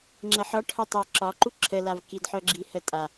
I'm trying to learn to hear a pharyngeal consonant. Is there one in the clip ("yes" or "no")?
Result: yes